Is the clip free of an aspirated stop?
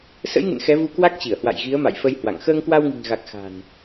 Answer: yes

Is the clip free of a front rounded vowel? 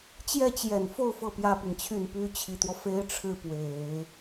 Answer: no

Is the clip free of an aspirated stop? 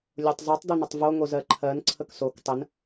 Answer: no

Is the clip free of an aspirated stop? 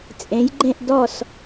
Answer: yes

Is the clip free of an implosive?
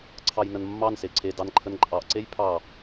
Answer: yes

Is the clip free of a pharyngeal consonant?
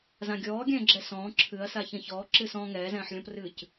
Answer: no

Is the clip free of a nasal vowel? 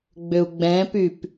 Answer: no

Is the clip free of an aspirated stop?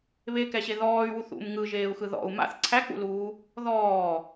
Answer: no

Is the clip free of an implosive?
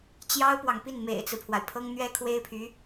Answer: yes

